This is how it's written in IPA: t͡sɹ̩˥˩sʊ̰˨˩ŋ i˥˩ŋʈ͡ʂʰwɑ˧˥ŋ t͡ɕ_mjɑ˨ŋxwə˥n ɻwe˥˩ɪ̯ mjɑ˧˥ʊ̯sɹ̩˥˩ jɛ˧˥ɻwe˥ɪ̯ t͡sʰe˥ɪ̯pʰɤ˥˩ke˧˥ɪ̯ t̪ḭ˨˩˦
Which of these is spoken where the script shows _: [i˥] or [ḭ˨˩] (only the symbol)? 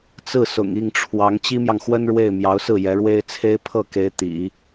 i˥